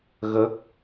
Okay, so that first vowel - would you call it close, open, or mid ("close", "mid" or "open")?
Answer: mid